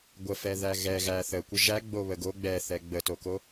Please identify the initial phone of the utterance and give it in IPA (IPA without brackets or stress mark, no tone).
ɡʷ